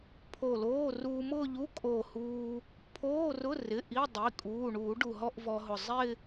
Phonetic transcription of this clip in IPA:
pʰ o˧˩ l oː˧˥˧ r uː˧ m ʊ˥˧ ʎ u˧˥˧ kʼ o˧˩ h uː˧ | pʰ oː˧˥˧ r ʊ˧˥˧ r ɪ˩˧˩ ʔ i˧˥˧ dˤ i˩˧˩ kʼ uː˩˧˩ ɳ uː˨˩˦ ɖ u˧˩ ɦ ɔ˥˧ ʔ v ɔ˧ ɦ ʊ˧˩ zˤ ɪ˥˧

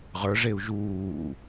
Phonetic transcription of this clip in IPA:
ʁ ə˞ ʐ e u̯ ʒ uː

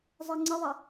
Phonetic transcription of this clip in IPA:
zˤ e ŋ͡ǀ ə ðˤ ɛ

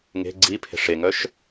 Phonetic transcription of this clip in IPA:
ŋ e̤ ɡ͡ǀ i pʰ e̤ ʂ e ŋ œ ʃ

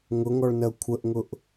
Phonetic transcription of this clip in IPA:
ŋ ʊ ŋ ɔ ɭ n ɜ kʷʰ ə ʔ ŋ ʊ ʔ

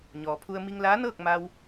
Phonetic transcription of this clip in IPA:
ɲ ɔː˩ pʰ u˧ ə̯ m i˧ ŋ l aː˧˥ n ɤː˥˨ k̚ m a˧ w

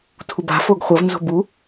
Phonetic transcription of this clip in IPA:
tʰ u b a̤ f o ɡ χʷ ɐ v n z o̤ b u

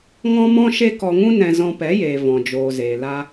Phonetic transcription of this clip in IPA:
ŋ ɔ̃˦ m ɔ̃˦ ʃ e˦ k ɔ˧ ŋ ũ˦ n ɛ̃˧ z ɔ̃˧ p ɛ˨˦ j eː˨ v ɔ̃˨ d͡ʒ oː˨ z eː˨ l a˧

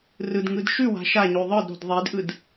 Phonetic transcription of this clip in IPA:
r ɯ d ŋ ɯ d ʃ ʉ w a̤ ʃ a ɲ ʉ ðˤ ɯ d ɾ o̤ d ðˤ i d ʔ ɯ d

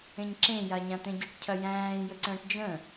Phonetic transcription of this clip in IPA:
ẽ ɲ ǁ ẽ j a ɲ ã t̪ ẽ ɟ ə ʈ cʰ ɐ j æ̃ː j ə ǀ ə̃ː ʈ d͡ʒ ə̃

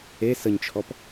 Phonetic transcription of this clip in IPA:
e s ə ɲ t͡ʃʰ ɔ p

